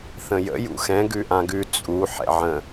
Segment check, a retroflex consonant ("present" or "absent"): absent